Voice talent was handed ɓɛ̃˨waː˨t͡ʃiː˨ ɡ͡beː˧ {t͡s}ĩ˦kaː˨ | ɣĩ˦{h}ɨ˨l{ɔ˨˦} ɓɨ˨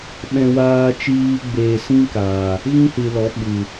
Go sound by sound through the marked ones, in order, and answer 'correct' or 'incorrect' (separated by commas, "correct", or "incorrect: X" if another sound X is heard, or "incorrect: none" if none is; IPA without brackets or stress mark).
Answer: incorrect: s, correct, correct